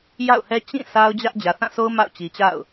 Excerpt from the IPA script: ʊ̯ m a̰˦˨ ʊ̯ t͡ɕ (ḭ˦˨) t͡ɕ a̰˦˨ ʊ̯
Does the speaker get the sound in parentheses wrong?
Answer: yes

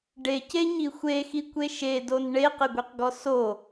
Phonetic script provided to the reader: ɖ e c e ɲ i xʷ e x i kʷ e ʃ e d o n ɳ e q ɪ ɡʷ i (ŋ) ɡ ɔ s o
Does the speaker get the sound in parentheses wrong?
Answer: yes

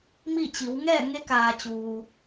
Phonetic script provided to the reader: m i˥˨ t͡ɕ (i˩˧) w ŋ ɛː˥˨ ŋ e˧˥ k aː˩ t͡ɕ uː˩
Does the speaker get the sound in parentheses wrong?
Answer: no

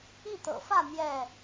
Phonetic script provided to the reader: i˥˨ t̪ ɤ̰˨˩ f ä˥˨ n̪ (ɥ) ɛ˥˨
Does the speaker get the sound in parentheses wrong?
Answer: yes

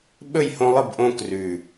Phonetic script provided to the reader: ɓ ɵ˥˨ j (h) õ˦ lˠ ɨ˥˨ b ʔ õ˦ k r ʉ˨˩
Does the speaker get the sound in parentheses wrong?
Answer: no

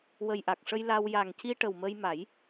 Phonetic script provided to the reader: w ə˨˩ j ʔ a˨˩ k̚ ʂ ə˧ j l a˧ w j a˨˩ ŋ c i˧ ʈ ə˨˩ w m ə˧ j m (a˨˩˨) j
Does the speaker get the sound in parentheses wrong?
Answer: yes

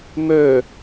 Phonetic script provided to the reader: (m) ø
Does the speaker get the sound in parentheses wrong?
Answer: no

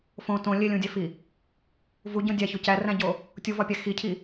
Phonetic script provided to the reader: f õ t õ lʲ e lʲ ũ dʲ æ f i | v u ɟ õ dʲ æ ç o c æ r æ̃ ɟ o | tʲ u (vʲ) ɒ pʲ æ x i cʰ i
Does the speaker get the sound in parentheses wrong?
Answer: yes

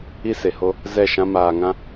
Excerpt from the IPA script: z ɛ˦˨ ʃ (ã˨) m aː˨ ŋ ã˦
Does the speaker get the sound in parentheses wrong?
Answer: yes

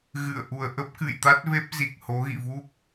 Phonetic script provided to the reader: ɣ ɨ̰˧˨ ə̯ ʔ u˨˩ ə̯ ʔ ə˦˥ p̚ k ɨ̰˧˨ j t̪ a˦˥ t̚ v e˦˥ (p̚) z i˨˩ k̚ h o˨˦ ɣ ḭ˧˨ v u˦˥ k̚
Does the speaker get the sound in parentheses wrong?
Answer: no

